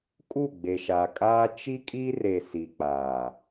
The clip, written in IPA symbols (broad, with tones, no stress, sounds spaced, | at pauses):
kʼ u˦˨ ɡ͡b e˨ ʃ a˨ kʼ aː˦ t͡ʃ i˦ kʼ iː˦ r e˨ s i˨ k͡p aː˨